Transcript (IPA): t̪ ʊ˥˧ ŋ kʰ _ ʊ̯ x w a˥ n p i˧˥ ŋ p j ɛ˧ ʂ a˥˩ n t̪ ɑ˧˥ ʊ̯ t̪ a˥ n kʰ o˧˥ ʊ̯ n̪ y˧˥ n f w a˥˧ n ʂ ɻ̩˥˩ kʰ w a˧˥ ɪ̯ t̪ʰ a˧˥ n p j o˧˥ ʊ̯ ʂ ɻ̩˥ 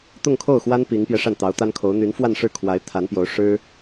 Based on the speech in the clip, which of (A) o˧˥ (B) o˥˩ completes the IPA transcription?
B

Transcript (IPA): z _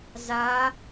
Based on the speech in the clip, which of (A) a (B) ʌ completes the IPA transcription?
A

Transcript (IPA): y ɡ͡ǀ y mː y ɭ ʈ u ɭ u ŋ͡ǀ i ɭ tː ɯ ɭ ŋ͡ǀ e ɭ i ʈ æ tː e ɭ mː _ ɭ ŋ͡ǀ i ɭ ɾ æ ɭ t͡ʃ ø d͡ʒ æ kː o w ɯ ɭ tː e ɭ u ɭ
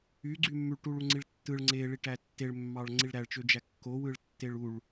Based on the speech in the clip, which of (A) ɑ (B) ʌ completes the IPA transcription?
A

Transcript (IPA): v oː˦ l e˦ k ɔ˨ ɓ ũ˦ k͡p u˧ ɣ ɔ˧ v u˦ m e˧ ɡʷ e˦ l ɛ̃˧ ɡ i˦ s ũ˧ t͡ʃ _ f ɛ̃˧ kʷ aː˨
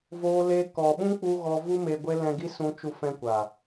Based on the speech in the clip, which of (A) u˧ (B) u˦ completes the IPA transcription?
A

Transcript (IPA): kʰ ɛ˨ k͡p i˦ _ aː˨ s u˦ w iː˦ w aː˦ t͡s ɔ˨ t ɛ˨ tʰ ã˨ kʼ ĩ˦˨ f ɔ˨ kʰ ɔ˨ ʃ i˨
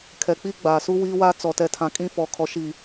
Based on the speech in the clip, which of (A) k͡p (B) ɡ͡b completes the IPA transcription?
B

